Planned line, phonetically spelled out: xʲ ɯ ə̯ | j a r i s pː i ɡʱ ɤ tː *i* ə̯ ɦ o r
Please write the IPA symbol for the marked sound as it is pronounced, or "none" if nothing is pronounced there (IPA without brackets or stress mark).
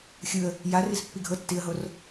i